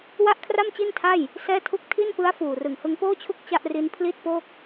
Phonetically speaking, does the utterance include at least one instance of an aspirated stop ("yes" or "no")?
yes